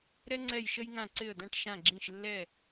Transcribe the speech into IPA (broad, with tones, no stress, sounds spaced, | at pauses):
ɾ ɛ˥ ŋ͡ǀ ɛ˥˩ j ʃ ə˥ j ŋ ã˥˩ ǀ ɪ˥˩ ə̯ d̪ ã˥ ʈ ʃ ã˥˩ ɡ͡ǁ ĩ˥˩ ʃ lː ɛ˥˩